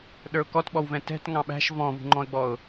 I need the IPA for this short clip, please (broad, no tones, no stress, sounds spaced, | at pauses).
ɗ ə˞ ʊ̯ k ɔ t ɓ ɔ w v ɛ̃ t ɛ̤ t ŋ ɑ̃ ɓ æ̤ ʃ v ɔ̃ v ṳ ŋ͡ǃ ɔ̃ ə̯ ɡ͡b ɔ ʊ̯